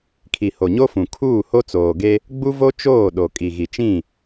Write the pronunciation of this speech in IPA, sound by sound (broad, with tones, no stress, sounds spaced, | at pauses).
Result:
kʰ i˨ h o˨ ɲ o˦ f ũ˨ kʰ uː˦˨ h o˦ t͡s oː˨ ɡ e˦ | ɡ͡b u˦ v o˦ t͡ʃ oː˦˨ ɗ o˨ kʼ i˨ ɣ i˨ t͡ʃ ĩ˦˨